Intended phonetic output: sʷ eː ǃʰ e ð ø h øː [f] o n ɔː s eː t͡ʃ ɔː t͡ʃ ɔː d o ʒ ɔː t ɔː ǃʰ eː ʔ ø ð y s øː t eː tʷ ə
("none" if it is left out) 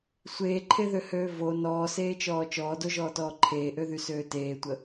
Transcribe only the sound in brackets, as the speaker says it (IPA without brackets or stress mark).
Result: v